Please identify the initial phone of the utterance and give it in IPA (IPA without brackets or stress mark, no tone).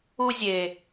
u